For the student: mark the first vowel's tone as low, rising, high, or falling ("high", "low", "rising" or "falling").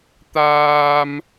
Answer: high